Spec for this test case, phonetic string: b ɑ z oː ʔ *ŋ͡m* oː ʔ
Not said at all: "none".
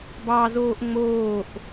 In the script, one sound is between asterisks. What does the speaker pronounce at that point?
ŋ͡m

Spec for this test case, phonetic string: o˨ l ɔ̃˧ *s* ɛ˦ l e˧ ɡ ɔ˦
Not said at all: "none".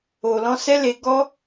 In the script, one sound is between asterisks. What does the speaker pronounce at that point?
s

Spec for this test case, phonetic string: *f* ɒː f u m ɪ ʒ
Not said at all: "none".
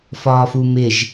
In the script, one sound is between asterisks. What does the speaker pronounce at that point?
f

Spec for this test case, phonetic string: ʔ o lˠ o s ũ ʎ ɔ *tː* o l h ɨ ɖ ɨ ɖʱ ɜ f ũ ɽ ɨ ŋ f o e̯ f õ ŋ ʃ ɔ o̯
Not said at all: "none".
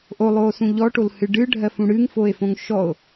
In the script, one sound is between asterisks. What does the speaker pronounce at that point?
ʈ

